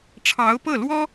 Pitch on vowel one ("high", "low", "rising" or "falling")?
rising